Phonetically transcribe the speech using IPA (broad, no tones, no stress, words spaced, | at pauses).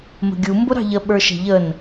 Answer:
mə̤ɡʲu mbʊɾɑ̤ʎə ɓə˞ʃɛ̤ʎən